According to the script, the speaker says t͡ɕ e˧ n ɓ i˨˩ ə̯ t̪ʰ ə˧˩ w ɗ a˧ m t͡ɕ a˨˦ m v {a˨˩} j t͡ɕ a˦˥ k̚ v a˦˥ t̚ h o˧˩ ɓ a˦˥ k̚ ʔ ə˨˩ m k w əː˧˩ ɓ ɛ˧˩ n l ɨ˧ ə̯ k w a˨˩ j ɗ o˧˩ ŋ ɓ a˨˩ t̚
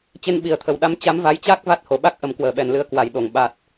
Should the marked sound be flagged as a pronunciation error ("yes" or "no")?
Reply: yes